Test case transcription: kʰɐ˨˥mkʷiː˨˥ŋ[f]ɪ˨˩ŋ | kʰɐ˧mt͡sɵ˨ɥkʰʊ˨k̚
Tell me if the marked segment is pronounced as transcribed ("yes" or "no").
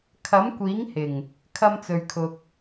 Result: no